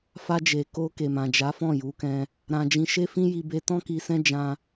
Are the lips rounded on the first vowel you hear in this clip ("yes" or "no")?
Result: no